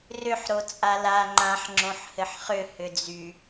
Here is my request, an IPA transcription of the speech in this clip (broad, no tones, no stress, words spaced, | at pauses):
rʏħ ɾot͡sʼala ŋ͡ǃãħ ŋ͡ǁõħhɘħχʏ hʏd͡zy